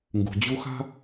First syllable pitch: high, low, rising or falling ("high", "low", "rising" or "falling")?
low